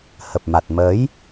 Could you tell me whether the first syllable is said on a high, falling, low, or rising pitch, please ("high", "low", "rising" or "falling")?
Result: low